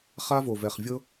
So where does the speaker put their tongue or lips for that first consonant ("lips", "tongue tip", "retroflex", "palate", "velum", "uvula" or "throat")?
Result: uvula